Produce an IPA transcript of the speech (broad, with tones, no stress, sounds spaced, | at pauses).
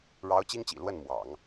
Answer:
ɻ ɑ˧˥ ʊ̯ t͡ɕ i˥ ŋ t͡ɕ ḭ˨˩ l w ə˥˩ n m w ɑ̰˨˩˦ ŋ